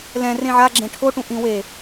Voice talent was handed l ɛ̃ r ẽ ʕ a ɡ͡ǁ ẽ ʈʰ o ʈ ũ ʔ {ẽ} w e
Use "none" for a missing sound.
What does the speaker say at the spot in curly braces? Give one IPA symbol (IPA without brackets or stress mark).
ĩ